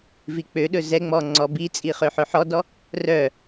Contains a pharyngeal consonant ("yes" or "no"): yes